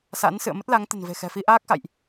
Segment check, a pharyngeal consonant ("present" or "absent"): absent